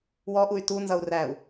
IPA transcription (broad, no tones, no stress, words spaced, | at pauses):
wɔʔuy̯ tunzʌu̯ ræu̯